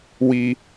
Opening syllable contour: high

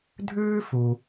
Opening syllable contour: high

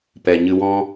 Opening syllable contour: low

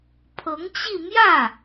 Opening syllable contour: rising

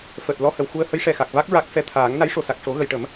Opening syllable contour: low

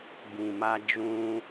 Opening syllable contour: low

